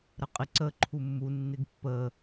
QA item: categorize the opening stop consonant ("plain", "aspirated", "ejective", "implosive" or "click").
ejective